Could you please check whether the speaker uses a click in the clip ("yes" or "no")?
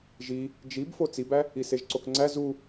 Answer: yes